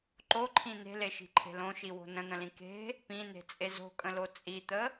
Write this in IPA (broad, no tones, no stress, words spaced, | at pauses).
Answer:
ǃoǃʰĩ ne̤leʃi̤ǃʰe̤ lõʃiwo̤ nə̃n̪ə̃lĩ ke̤ | pĩne̤t͡sʼe zo̤kʼə̃lo t͡sʼit̪ə